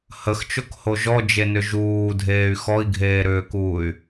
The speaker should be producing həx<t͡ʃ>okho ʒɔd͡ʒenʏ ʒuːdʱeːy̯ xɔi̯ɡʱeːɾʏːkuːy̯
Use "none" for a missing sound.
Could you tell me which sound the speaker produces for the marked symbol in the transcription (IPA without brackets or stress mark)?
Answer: t͡ʃ